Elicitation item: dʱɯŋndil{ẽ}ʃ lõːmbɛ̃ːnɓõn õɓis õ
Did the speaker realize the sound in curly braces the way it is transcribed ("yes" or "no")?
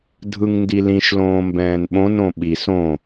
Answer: no